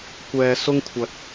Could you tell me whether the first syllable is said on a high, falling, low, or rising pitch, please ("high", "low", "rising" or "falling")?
low